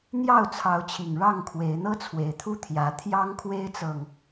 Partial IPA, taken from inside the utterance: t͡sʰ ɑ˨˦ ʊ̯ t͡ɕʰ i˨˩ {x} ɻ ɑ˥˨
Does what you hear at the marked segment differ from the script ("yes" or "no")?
yes